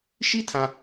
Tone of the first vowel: high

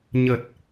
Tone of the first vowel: low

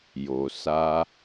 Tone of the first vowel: low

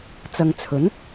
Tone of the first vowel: low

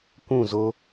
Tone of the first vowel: falling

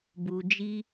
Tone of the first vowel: low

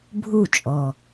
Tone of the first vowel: falling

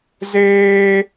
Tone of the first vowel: high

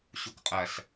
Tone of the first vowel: low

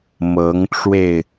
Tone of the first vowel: rising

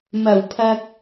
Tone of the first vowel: low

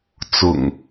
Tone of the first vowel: low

